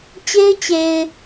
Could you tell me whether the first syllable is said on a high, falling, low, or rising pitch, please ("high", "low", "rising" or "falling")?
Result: high